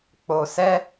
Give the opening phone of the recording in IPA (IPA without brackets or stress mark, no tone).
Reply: k͡p